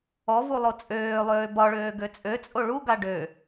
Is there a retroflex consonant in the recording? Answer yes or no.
yes